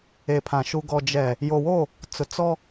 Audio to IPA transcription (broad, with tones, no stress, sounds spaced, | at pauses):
e˨ pʰ ã˨ ʃ u˨ ɡ ɔ˨ d͡ʒ ɛ˨ | j o˨ w o˦˨ | t͡s ʊ˨ t͡s ɔ˦